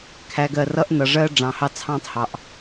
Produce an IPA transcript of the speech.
kʰ æ˨ ɡ ɜ˨ r ʌ˦ ʔ n ʌ˨ ʐ ɜ˦ ɖ͡ʐ ɑ̃˨ h ɑ˦ t͡sʰ ɑ̃˦ tˤ h ɑ˨ ʔ

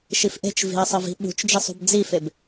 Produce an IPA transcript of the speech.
ʃ i f ʔ e̤ t͡ʃ v i̤ ɐ̯ sˤ ʌ v i̤ ɓ ṳ t͡ʃ d͡ʒ e sˤ ṳ b d͡z i f e b

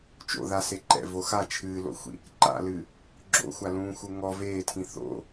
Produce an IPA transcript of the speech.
t͡ʃ o̰ ð a s e ǃ ɛ̰ v o x a t͡ʃʰ ɨː l o̰ xʷ ḭ | ǃ a̰ l ɨ | ɡ͡ǁ o̰ xʷ a l ũː x u ŋ ɔ v eː tʰ ĩ θ o̰

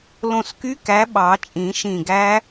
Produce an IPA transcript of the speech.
l õ˧˩ s k y˦˥ k æ˨˥ ɓ ɑ˨˩˦ t͡ʃʼ ĩ˨˩˦ ʃ ĩ˧˩ ɡ æ˦˥

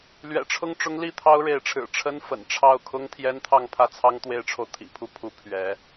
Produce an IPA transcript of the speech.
l ɥ ɛ̰˨˩ ʈ͡ʂʰ ʊ˥˩ ŋ ʈ͡ʂ ʊ˥ ŋ l i˥˩ t̪ʰ ɑ˥ ʊ̯ ɻ e˧˥ ɪ̯ ʈ͡ʂʰ ɻ̩˨˩ ʈ͡ʂʰ ə˥ n f ə̰˨˩ n ʈ͡ʂʰ ɑ˥˩ ʊ̯ kʰ ʊ˥ ŋ t̪ʰ j ɛ˥ n t̪ʰ ɑ˥˧ ŋ pʰ ä˥˩ t͡sʰ ɑ˥ ŋ t̪ w e˥ ɪ̯ ʈ͡ʂʰ o˨ ʊ̯ t̪ʰ ḭ˨˩ pʰ u˥˩ pʰ u˧˥ pʰ ɥ ɛ˧˥

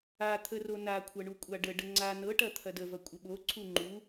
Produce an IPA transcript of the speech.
a t̪ʰ ə r o n a kʷʰ ɐ ɳ u kʷʼ a ɖ ə ɖ ə ŋ͡ǀ a n ɤ ʈ ɐ t̪ʰ ɐ d ə v ɐ kʷʼ ə ɓ o ǀʰ u ŋ͡ǃ u

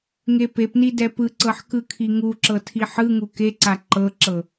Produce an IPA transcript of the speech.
ŋ e p e p n i d ɛ p ɯ ǀ ɤ ħ k ɯ kʰ i ŋ u ǁ ɤ tʰ i ħ ɯ ŋ u k e ǀ a ǃ ɤ ǁ ɤ

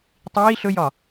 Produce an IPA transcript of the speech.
tˤ iː ɬ ɵ j ɒ

